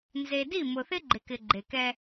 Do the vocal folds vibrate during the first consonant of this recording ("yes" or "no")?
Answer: yes